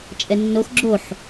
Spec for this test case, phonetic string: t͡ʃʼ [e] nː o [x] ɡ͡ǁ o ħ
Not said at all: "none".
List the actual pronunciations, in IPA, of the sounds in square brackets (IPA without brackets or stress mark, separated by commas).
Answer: ɛ, x